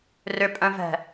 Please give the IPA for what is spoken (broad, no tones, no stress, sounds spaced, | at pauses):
r ʏ pʼ œ̃ v ɛ̤